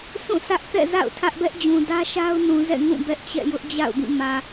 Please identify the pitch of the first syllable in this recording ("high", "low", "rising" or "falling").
falling